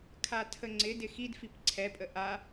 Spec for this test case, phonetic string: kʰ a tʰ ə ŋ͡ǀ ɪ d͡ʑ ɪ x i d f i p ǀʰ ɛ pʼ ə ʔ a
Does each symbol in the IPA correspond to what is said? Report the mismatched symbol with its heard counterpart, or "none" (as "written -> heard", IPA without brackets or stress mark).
d͡ʑ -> d